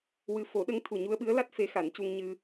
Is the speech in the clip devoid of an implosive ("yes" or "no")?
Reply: no